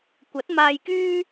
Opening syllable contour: rising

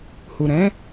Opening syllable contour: low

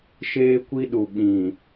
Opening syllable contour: high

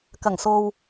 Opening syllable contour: low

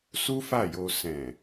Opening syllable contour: high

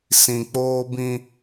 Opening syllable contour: low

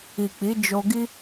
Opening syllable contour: low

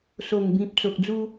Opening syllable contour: low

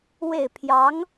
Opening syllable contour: falling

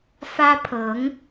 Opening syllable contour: high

